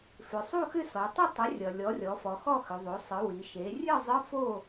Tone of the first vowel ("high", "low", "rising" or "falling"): low